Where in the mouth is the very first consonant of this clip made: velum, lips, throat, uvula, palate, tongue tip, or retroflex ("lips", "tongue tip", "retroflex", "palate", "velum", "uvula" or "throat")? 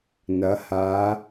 tongue tip